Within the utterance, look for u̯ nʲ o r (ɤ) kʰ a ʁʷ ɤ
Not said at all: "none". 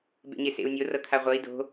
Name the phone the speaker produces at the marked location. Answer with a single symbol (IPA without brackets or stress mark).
ɤ